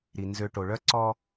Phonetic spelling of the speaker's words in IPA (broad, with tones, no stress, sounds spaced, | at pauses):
ɾ i˨ n z ø˦ ʈ o˨ ɭ œ˦ ǀ ɔ˦